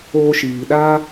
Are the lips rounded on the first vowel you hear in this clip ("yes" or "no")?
yes